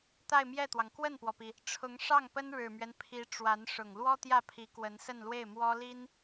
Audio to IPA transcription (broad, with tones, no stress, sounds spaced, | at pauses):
t̪ a˥˧ ɪ̯ m j ɛ˥˩ t̪ w ɑ˩ ŋ k w ə˥˩ n p w ɔ˩ p i˩ | ʈ͡ʂʰ ʊ˧˥ ŋ ʂ ɑ˥˩ ŋ p ə˥ n ɻ ɻ̩˨˩ m ɥ ɛ˦ n pʰ i˧˥ ʈ͡ʂ w a˧˥ n ʂ ʊ˨˩ ŋ l w ɔ˥ t̪ j ä˥˩ pʰ i˧˥ k w ə˧˥ n s ə˥˧ n l w e˥˩ ɪ̯ m w ɔ˥ l i˥ n